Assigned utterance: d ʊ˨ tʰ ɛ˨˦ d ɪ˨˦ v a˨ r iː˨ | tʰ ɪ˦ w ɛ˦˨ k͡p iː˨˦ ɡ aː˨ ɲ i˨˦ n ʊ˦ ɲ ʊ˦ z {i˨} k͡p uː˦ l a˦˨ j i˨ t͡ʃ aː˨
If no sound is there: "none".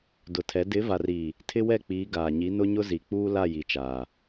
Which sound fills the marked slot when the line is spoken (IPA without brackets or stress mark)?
i˨